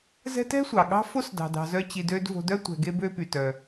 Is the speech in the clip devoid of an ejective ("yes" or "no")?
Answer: yes